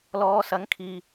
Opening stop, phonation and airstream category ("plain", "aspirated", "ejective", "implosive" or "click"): aspirated